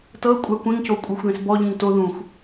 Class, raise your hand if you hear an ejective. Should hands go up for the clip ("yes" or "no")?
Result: yes